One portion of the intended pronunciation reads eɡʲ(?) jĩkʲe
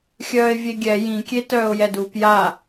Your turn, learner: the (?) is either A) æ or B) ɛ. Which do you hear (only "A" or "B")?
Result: B